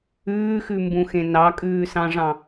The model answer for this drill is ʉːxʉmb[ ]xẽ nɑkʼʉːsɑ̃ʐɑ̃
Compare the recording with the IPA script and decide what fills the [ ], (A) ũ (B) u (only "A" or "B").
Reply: A